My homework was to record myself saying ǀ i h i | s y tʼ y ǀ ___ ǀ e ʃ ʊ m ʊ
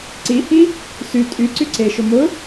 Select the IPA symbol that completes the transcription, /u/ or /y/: y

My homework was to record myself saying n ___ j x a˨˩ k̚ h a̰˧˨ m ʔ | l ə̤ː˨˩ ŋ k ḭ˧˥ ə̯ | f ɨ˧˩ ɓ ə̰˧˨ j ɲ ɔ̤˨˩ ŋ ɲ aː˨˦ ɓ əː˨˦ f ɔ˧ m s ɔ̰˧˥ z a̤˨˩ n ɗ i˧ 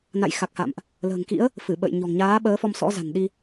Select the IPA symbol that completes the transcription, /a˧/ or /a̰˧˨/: a̰˧˨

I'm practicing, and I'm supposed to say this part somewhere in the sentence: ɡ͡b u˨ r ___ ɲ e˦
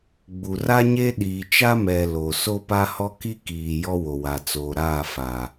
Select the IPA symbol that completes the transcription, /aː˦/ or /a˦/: a˦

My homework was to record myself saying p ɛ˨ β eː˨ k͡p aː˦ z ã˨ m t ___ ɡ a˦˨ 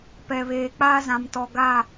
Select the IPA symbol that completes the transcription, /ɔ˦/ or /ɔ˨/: ɔ˨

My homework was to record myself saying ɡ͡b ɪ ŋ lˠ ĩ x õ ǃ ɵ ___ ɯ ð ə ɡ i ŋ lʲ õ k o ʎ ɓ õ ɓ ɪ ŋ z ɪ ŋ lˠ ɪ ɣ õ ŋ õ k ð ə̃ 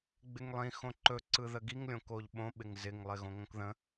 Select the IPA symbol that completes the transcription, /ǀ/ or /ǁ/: ǀ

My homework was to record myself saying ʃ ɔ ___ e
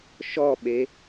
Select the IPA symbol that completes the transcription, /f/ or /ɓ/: ɓ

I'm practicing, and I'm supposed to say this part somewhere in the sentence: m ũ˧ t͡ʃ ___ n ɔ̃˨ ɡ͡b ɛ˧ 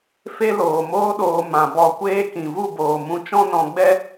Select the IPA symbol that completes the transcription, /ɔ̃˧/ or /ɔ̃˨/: ɔ̃˧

